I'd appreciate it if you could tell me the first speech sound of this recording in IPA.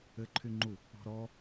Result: ɘ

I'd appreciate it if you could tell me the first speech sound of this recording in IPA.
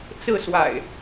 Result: t͡s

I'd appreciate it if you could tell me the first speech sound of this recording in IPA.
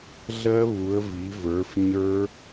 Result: ɮ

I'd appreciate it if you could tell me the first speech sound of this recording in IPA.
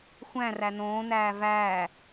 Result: xʷ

